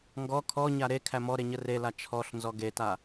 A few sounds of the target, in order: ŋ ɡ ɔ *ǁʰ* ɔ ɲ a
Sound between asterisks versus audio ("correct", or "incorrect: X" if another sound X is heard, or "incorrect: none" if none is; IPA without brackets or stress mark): incorrect: kʰ